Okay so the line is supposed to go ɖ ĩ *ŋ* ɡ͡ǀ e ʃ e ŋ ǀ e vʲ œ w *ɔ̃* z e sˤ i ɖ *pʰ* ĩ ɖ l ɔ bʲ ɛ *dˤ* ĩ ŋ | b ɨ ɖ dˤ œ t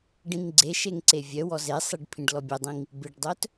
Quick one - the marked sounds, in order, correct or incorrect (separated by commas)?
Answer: correct, incorrect, correct, correct